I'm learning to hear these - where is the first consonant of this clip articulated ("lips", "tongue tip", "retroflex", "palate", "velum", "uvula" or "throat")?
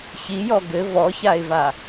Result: palate